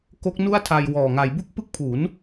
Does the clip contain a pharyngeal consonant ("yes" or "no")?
no